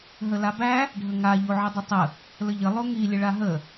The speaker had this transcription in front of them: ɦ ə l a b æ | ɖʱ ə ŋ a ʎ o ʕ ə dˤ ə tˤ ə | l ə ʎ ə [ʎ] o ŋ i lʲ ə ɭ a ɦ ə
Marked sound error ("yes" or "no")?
yes